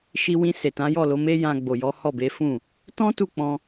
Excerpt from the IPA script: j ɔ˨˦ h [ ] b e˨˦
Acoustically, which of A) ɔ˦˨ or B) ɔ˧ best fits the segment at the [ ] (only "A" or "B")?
A